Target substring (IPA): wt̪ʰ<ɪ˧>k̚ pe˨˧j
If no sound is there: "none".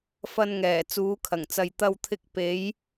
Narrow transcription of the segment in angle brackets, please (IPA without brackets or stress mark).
ɪ˧